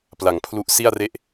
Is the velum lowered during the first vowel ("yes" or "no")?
no